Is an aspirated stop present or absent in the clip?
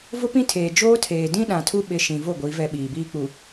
present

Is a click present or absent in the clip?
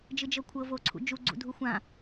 present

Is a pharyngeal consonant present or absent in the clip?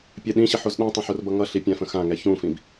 present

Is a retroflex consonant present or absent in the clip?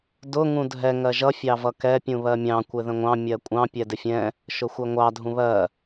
absent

